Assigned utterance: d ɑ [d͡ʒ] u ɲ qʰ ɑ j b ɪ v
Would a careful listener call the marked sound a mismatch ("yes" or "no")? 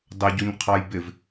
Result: yes